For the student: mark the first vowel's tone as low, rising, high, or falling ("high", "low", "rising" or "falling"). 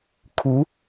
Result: rising